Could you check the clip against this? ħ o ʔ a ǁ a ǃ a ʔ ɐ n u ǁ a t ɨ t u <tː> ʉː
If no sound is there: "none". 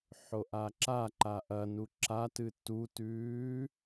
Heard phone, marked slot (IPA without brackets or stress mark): t